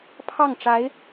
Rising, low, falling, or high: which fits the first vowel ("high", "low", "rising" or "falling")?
falling